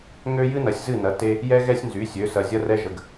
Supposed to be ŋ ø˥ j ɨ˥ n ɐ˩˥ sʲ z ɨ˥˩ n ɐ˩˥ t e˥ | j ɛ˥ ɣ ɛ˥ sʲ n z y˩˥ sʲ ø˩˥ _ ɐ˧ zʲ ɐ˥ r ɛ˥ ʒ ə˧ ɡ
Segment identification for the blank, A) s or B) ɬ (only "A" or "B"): A